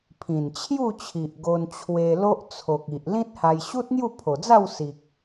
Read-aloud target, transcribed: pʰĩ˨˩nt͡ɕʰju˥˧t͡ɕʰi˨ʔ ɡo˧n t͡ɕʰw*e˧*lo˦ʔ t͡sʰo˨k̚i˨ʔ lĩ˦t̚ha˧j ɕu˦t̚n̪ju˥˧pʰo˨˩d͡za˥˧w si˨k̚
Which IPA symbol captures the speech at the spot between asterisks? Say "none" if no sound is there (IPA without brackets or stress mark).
e˧